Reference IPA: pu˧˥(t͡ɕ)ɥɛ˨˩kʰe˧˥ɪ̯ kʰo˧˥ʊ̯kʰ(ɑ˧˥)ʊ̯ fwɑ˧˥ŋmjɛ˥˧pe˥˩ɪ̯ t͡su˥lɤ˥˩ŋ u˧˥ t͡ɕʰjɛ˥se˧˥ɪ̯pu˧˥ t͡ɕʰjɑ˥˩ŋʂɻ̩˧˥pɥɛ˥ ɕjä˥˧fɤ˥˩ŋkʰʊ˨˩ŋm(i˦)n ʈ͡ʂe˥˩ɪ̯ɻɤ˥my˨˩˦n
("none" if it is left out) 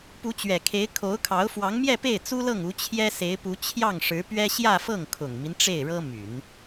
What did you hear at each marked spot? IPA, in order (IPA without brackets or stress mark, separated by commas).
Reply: t͡ɕ, ɑ˧˥, i˦